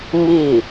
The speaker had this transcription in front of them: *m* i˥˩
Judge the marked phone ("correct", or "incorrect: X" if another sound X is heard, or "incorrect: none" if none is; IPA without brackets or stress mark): correct